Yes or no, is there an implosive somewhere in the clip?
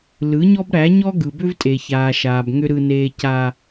no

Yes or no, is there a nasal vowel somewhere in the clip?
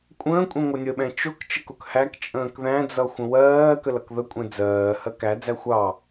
yes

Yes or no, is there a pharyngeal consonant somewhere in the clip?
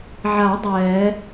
yes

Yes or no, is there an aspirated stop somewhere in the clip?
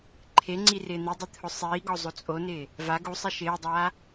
yes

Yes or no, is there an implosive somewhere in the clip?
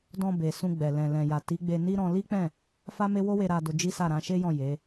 no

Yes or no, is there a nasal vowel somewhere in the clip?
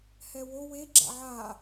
no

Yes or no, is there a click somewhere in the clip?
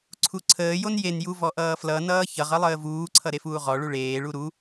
yes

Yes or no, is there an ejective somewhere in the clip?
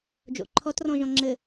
no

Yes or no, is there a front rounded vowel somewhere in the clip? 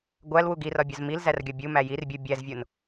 no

